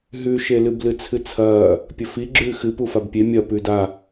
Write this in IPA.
ɦ ʉ ʃ e l ɨ b l ɨ t͡sʰ ɨ t͡sʰ ɐː | pʲ ɵ f i ɡ͡ǁ ʉː x ɨ p u f a b pʲ e mʲ ɐ p ʉː d a

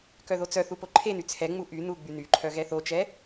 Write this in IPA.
k œ ð o t͡s œ θ u p o ǃʰ e n y t͡sʰ ɛ ŋ͡m u ʔ y n u ɡ͡b y n y ǃʰ œ ɣ ɛ θ o t͡ʃ ɛ

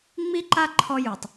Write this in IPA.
ŋ͡m i˦ ǃ a˦ ǃʰ ɔ˧ j u˨ tˤ

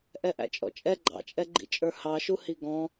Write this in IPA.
ʔ ɛ ʔ æ̰ t͡ʃʼ ɔ̰ t͡ʃʼ ɛ ɡ͡ǃ ɑ̰ t͡ʃʼ ɛ ɡ͡ǃ ḭ t͡ʃʼ ə˞ h ɑ ʃ u h i ɡ ɔ̃

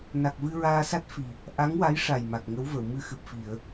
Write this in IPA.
n a˨˩ k̚ v ɨ˧ ɹ aː˧ s a˦˥ t̚ f i˨˩ | ʔ a˧˥ ŋ w a˧˥ j ʂ a˨˩ j m a˨˩ k̚ ŋ ə˧˥ w v ə˨˩˨ w m ɨ˧ x ɨ˨˩ p̚ f i˨˩˨ ə̯

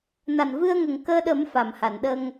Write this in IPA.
n a˨˩ n v ɨ˧ ə̯ ŋ ə˨˩ ŋ k əː˧ ɗ ə˨˩˦ m f a˨˩ m h a˨˩˨ n ɗ ə˧ ŋ

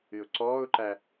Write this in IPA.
ɨ ʊ̯ ǀ ɔː ʊ̯ ǃ æ

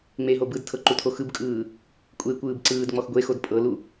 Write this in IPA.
ŋ͡m e ɦ o b ɯ d tʰ ɤ ǃ u tʰ o x ɯ b kʼ ɯː | kʷʼ e kʷ ɯː b ǀ ɯː d ŋ͡m ɔ x ɡʷ e x o d pʼ ɤ l u

